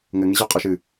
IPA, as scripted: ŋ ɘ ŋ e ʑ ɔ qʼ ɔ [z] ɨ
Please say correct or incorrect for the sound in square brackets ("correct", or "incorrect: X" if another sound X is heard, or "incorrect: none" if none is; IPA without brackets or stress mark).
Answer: incorrect: ʃ